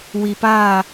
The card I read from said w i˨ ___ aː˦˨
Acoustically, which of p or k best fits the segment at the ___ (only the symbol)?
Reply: p